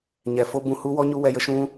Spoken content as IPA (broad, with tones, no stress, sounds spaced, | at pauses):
ɲ ɛ˨ f o˦ b ũ˧ h u˦ w ɔ˦ ɲ u˦ w ɛ˧ j ə˦ ʃ ũ˦